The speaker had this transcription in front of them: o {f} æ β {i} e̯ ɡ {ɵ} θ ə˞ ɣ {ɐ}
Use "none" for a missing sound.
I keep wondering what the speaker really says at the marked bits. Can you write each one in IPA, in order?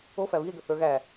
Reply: f, i, ə, æ

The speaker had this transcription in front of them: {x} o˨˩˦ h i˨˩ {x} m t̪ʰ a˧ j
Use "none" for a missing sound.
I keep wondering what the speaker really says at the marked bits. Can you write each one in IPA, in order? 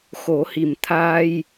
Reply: x, none

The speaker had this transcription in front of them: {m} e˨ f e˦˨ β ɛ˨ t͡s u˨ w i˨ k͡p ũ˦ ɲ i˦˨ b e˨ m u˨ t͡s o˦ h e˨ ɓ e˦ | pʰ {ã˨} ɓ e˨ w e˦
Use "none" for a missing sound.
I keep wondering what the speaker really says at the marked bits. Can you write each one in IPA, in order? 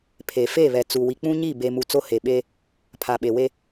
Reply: pʰ, a˨

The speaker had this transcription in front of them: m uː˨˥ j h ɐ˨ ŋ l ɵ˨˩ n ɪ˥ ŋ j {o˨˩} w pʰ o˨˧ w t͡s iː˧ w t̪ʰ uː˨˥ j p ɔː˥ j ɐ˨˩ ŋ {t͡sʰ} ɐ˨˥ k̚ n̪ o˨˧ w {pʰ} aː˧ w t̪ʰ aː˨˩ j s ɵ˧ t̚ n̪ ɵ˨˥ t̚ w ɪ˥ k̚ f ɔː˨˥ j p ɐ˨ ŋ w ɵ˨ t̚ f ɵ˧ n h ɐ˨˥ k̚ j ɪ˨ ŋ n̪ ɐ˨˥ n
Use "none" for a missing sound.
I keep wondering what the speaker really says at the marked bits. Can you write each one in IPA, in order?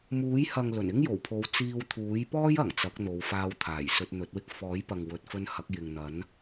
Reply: o˨˩, t͡s, f

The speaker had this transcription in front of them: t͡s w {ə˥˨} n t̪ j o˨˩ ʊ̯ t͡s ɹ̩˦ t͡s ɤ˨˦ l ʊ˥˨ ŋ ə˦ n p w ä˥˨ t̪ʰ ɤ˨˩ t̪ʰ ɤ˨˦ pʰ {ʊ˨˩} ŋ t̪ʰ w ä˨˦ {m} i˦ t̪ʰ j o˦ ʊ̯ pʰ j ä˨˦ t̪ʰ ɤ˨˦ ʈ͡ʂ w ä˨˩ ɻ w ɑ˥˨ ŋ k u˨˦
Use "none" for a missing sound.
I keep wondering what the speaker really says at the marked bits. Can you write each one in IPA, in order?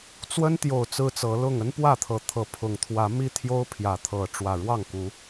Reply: ə˦, ʊ˨˩, m

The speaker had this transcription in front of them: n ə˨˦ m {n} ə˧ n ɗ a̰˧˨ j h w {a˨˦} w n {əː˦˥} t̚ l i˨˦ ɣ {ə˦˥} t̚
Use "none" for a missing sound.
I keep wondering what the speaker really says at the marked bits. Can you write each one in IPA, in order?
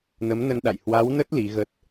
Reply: n, a˨˦, ə˦˥, ə˦˥

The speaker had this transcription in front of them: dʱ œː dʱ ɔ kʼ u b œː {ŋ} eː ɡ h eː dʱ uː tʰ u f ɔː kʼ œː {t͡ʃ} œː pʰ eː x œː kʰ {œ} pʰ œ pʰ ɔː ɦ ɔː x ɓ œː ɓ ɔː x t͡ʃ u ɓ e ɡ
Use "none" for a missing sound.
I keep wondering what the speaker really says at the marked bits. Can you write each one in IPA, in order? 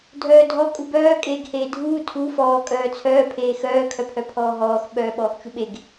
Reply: kʼ, t͡sʰ, œ

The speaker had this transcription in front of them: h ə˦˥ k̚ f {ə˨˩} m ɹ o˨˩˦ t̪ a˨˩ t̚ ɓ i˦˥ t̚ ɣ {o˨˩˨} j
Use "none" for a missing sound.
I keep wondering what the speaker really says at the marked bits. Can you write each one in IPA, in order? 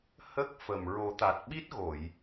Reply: ə˨˩, o˨˩˨

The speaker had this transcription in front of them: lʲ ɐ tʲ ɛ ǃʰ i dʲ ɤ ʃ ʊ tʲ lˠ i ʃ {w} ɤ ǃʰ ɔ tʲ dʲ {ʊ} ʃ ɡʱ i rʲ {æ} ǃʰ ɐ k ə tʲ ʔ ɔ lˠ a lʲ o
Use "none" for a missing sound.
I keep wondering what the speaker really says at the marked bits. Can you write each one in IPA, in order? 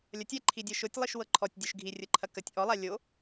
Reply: w, ʊ, ə

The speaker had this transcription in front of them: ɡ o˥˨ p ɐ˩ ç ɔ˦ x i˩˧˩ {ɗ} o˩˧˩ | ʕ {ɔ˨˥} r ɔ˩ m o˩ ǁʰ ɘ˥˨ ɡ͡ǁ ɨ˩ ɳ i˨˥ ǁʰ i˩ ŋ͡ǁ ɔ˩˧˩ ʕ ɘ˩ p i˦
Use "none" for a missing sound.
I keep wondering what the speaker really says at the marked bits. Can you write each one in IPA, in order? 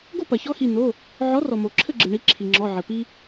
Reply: n, ɔ˨˥

